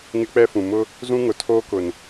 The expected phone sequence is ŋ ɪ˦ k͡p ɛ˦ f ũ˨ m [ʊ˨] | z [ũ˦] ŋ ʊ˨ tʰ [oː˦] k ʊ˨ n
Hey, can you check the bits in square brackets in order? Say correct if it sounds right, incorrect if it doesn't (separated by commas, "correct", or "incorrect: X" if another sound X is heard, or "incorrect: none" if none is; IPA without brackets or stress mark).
incorrect: ʊ˦, correct, correct